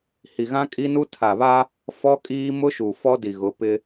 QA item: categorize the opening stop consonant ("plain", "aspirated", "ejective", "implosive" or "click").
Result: ejective